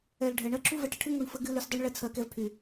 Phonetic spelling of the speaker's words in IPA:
ɛ˨l ɖʱɛ˨ɳɜ˧ǁʰu˦ vɛ˧ʈə˨ʈʰɨ˦ ŋu˦˨ɳfə˦ ɡɨ˦ ly˧sdˤu˦ɳ ɭɛ˧t͡sʰɜ˧kɛ˧vpʰy˨

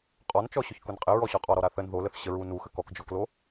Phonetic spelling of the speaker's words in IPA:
qʼɔnt͡ʃɔɕʊç kʊnqʼɪ ɹɔɕɔqʼɔ ɾɔɾaθən ðoləθ ɕəɹu nuxə kɔkd͡ʒɔklo

